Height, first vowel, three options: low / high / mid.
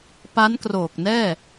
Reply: low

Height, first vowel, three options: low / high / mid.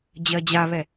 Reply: mid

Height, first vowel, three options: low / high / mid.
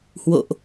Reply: mid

